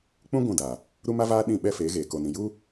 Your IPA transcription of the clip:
k͡pũ˦ ɡʷũ˦˨da˨ | ɾu˦ma˦ vaː˦ ɗĩ˦˨ ɓɛ˦feː˨˦ɣeː˨ ko˨nĩ˨ ju˦

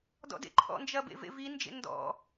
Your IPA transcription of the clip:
dɔ̰dḛǃʰɔ̰nd͡ʒɐ bḛvḛvind͡ʒḛ ndɔ̰

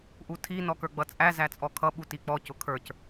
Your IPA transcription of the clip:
ʔutʰi nɔkə˞ɡ͡bʌt͡sʼæ zæt͡sʼɔkʰʌ ɓutik͡pɔ cʊkʰə˞c

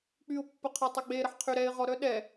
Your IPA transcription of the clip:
k͡pyʊ̯pːəqʰa tˤœɡ͡beɾəħ qʰyɾɛɪ̯ ʁɔ ɾœɗɛ

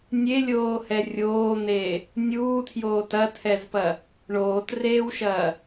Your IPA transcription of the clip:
nʲelʲoːhɛ rʲoːn̪eː | nʲuːtʰjoːt ɐtʰɛzpɐ | ɳoːtreːwʃɐː

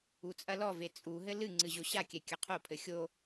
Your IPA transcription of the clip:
ut͡sʼɐlɔve t͡sʼuɦɘ lɨŋ͡ǀɨ ʑoɕakʲɛ kʲɐqʰopʰɘ xʲo

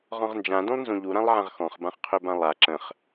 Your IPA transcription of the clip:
ʁɔ̃ʁnd͡ʒã dũlˠnzũʎuɾãlˠ ʕãʁxɔ̃χbãχ qʰøbãlˠa ǁə̃χ

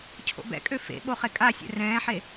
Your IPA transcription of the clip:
cʰo̰bɛ̰kʼø fḛɓo χekʼasʲɛ̰ rɛ̃ːħe

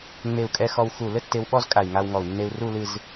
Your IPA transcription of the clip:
ŋ͡me˧˩u̯kʼɛ˧ xɔ˧wxu˧˩ lɘ˥tːe˧wɓɔ˥˧z kʼa˧˩i̯ŋa˧wŋɔ˧˩u̯ nːe˧u̯ru˥˧ lɨ˥˧z

